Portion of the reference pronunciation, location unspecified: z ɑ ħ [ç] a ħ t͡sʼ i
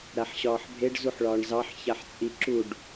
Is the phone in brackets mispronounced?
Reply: no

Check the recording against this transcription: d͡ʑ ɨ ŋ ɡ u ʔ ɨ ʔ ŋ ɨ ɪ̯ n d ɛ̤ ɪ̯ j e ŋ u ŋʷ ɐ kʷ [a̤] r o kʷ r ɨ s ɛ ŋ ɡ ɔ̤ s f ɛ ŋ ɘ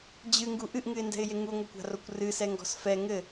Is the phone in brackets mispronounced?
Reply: no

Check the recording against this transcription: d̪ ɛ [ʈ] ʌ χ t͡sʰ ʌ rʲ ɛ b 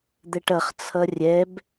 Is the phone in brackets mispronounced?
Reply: no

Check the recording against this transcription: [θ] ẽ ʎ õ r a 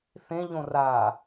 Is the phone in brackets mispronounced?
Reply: no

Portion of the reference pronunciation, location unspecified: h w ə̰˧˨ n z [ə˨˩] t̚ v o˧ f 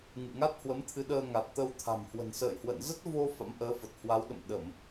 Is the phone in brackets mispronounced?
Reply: yes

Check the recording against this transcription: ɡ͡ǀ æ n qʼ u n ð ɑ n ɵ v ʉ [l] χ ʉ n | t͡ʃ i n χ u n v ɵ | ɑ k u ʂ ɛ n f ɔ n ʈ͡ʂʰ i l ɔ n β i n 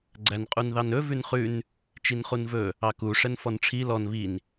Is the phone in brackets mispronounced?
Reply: yes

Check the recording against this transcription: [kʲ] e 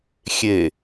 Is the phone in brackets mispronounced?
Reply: yes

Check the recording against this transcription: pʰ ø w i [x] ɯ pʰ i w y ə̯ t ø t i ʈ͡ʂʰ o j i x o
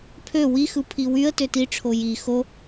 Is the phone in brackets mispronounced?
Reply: no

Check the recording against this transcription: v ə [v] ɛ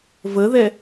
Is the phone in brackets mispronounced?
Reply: yes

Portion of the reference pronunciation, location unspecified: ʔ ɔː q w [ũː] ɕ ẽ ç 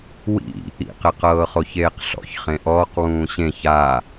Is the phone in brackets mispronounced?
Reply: no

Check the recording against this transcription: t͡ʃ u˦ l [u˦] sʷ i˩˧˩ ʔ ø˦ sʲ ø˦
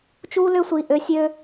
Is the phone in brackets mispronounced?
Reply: yes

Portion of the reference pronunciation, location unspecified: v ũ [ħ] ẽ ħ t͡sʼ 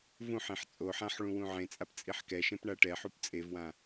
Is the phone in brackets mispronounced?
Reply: no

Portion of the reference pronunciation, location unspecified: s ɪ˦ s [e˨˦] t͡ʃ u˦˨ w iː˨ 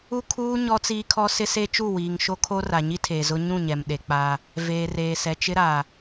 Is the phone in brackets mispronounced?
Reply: yes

